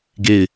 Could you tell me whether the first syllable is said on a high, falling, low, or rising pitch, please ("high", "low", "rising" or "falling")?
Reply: falling